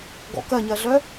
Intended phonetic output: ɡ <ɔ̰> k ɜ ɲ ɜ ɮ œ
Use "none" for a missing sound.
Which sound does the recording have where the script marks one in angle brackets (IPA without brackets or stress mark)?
ɔ̰